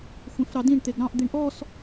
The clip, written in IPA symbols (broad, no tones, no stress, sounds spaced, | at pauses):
xʷ ẽ f ɾ ɑ d ĩ ɳ t̪ e ɡ ɾ ɑ̃ ʔ d̪ i ɳ ʔ ɔ s